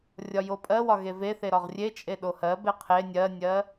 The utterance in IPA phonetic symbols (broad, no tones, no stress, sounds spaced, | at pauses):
rʲ ɒ j o pʼ ɜ w ɒ ɣ e v e θ e ɾ ɒ ʁ rʲ e t͡ʃʼ e ɗ o h ɜ b e qʰ e nʲ ɜ nʲ ɜ